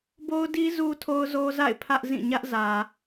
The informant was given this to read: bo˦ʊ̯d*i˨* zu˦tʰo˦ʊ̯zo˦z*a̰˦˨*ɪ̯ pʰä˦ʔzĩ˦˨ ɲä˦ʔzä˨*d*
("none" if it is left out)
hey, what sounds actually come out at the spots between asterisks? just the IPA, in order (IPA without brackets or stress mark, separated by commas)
i˦, a̰˦˨, none